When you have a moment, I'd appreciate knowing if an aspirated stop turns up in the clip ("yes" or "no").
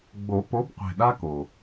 no